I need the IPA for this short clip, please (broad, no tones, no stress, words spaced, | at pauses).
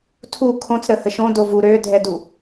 tʰu kʰõt͡sɾəhə ʃõdov u ɾødʱɛdu